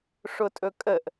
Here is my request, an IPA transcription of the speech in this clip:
ʂ ʊ tʼ ɵ kʼ ə ʔ

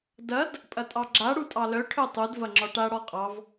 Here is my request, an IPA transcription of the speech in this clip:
d ɐ d | pʼ ɐ tʼ ɑ ɡ͡ǁ a ɽ u tʼ ɑ l œ ʈʰ œ tˤ u d v ɐ ŋ͡ǁ ɒ ʈ a ɽ ɒ qʼ ɑ v

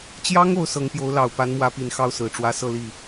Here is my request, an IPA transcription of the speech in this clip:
t͡ɕ j ɑ˥ ŋ o˧˥ ʊ̯ s ɤ˧˥ ŋ p j o˧˥ ʊ̯ l ɑ˨˩ ʊ̯ p a˧˥ n m w ä˧˥ p i˨˩ n x ɑ˥˩ ʊ̯ s ɹ̩˨˩ ʈ͡ʂ w ä˧˥ s ɤ˥˧ l i˥˩

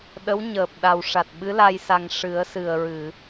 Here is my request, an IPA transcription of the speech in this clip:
ɗ ə˧˥ w ɲ əː˨˩ p̚ ɗ a˨˩ w ʂ a˨˩ t̚ ɓ ɨ˧˥ l a˧ j s a˨˩ ŋ ʂ ɨ˨˩˦ ə̯ s ɨ˨˩ ə̯ ɹ ɨ˨˩˨

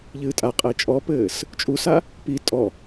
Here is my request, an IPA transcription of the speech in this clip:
ʎ ɨː tʼ a qʼ e t͡ʃʼ ɔ p ɘː s | t͡ʃʼ u s a | p i tʼ ɔ

